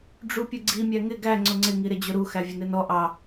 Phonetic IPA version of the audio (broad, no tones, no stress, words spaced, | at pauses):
ɖ͡ʐupʲʊɡ͡ǀi mʲæŋɪ ɡæ ŋ͡ǀʊŋ͡ǀɪ ŋiɾɪd͡ʑʊɾu xævʲʊnɪnɔ ʔɑ